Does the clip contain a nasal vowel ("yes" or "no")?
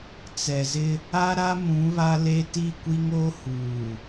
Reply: yes